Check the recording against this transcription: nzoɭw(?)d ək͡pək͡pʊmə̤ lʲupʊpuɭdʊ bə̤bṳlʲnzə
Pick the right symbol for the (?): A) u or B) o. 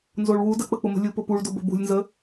A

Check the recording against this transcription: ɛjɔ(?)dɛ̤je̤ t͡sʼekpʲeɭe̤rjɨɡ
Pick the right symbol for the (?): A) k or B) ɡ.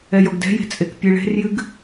B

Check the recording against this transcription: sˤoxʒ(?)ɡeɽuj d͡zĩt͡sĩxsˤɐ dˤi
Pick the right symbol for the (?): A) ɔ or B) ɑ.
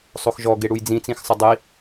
A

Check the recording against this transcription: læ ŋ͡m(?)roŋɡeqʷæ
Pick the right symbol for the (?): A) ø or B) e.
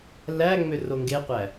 A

